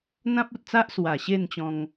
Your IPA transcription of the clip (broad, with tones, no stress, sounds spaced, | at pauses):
n̪ ã˦ p̚ u˨ t̚ t͡s a˦ ʔ s w a˨˩ ɕ e˥˧ n t͡ɕ ɔ̃˧ ŋ